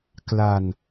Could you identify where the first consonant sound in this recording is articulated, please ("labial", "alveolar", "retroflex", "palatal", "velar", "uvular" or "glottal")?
velar